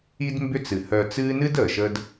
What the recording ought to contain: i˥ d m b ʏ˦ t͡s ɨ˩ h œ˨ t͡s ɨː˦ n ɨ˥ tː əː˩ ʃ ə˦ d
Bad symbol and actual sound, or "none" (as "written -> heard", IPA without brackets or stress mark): tː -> d